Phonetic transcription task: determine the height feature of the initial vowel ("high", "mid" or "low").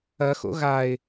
low